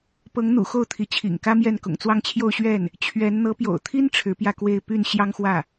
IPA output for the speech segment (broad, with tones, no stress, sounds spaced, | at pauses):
p ɤ˧˥ ŋ n̪ ṵ˨˩ x o˥˩ ʊ̯ t̪ʰ i˧˥ t͡ɕʰ ḭ˨˩ ŋ k ä˥ m j ɛ˥˩ n k ʊ̰˨˩ ŋ t͡s w ɑ˥˧ ŋ t͡ɕʰ j o˥˧ ʊ̯ ɕ ɥ ɛ˥˩ n | t͡ɕʰ ɥ ɛ˧˥ n n̪ ɤ˧˥ p j o̰˨˩ ʊ̯ t̪ʰ i˥ n ʈ͡ʂʰ ɻ̩˧˥ p j ä˥˧ k w e˥˧ ɪ̯ p y˥˩ n ɕ j ɑ˥ ŋ x w ä˥˩